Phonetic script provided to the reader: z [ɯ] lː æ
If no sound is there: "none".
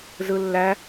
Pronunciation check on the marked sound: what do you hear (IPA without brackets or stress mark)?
ɯ